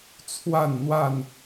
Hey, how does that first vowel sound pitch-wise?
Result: falling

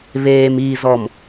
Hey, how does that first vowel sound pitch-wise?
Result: low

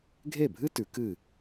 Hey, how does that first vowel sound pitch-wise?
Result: falling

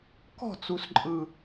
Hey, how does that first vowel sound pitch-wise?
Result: falling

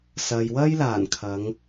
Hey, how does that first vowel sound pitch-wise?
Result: low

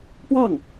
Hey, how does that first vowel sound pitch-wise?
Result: falling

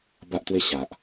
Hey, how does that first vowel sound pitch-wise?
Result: high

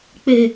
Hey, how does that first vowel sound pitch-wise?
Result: high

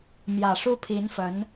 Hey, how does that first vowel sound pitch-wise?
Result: low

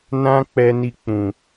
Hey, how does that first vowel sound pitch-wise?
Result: high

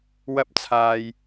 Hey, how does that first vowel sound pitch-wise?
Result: rising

